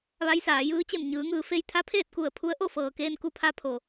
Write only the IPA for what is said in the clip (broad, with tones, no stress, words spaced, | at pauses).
ʋa˧˥jsaː˩˧jɯː˧˥ t͡ɕe˧˩mɲɯː˩˧ŋɯː˩fe˧j t̪ʰa˧˥pʰeː˥˨t̚ku˧˩ə̯ pʰu˧˥ə̯ʔo˥˨ fɤː˩keː˧nku˧pʰa˧ pʰo˩